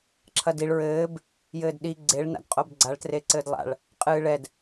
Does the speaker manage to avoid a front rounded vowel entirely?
yes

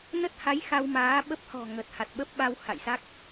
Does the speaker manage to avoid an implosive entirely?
no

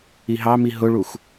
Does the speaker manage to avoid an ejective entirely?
yes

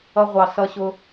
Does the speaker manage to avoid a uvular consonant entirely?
no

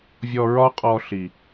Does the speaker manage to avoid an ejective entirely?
no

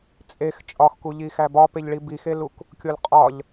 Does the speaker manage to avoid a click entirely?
yes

